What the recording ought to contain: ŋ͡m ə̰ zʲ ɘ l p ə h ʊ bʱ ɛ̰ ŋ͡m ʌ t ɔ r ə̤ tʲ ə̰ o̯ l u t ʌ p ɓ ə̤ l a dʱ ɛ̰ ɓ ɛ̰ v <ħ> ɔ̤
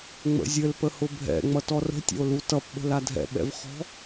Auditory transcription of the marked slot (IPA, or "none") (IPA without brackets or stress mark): χ